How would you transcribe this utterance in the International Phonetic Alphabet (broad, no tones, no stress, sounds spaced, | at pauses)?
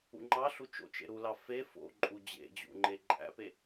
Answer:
ṵ ŋ͡ǃ ɑ ɬ u t͡ʃ o̰ t͡ʃ ḛ ɾ u l ɑ f e f o̰ ǃʼ u d͡ʑ ḛ d͡ʑ ṵ ŋ͡ǃ e ǃʼ æ̰ p e